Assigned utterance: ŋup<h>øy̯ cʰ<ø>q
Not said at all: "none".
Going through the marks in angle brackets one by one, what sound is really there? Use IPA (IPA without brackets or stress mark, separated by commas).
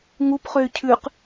χ, ʉ